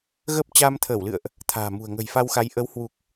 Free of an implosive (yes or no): yes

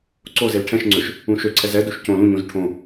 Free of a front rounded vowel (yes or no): no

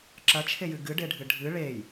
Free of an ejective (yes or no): yes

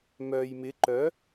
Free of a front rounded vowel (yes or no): no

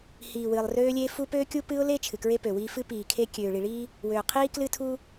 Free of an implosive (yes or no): yes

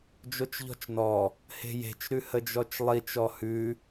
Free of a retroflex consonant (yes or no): yes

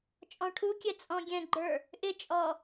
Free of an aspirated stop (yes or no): no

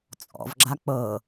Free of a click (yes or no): no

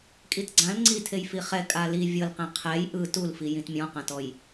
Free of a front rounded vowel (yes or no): yes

